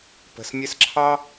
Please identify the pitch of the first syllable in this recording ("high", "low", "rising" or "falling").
low